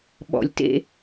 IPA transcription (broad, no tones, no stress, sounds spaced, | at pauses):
ɓ ɔ̰ lʲ t ḛ